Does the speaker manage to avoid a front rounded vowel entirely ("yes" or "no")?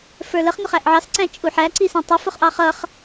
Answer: yes